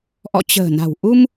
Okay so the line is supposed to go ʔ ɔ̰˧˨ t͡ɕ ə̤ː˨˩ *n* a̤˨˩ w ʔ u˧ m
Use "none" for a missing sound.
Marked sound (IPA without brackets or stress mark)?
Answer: n